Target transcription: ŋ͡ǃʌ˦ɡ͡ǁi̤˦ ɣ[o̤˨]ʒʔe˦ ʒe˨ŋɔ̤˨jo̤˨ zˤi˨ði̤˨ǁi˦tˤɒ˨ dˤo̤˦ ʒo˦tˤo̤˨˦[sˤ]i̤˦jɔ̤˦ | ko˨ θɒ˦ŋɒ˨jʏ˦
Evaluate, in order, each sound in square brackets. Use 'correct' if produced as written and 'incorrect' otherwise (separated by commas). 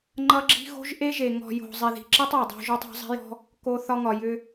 incorrect, incorrect